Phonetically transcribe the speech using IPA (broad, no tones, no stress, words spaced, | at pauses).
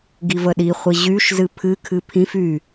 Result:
ɡivəɗiχʷi ʑyʃzɨ pʰɨkʰɨ pʰĩf y